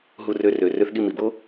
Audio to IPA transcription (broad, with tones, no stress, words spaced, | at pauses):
ɦu˧rø˧rø˨ rø˧θɠi˧mi˨bo˦